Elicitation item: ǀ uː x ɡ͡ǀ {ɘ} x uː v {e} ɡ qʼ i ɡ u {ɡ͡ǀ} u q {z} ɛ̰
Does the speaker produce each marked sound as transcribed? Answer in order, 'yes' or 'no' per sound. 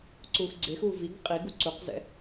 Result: no, no, no, yes

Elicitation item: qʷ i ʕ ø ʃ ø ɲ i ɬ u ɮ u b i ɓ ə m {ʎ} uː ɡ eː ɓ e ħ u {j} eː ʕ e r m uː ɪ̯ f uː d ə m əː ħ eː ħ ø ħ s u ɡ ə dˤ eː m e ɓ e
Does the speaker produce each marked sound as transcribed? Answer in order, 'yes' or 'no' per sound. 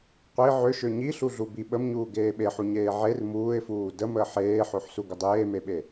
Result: no, no

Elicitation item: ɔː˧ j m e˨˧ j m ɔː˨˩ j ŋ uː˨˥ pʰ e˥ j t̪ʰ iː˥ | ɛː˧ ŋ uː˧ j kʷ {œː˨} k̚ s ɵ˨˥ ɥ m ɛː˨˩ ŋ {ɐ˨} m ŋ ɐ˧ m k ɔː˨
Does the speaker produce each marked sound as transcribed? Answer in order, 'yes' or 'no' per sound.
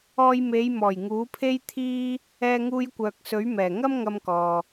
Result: yes, no

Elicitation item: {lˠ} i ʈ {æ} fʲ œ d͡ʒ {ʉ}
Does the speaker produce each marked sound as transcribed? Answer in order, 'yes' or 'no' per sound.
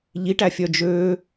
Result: no, yes, no

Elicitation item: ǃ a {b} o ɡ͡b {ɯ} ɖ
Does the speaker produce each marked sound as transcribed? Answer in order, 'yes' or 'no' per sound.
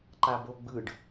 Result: yes, yes

